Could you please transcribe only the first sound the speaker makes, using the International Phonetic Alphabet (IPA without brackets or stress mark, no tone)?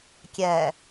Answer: kʲ